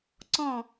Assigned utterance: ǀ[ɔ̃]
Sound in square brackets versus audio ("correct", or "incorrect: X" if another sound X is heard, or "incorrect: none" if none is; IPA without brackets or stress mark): correct